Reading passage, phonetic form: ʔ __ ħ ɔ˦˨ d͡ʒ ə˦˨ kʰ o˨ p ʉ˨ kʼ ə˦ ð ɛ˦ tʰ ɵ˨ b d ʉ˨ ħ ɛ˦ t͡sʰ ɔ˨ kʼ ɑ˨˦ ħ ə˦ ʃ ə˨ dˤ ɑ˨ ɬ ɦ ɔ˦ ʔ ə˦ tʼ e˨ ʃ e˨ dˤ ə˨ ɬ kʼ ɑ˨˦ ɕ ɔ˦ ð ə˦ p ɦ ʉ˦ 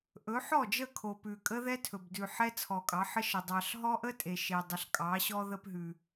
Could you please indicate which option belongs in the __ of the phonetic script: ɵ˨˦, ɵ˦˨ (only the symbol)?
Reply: ɵ˨˦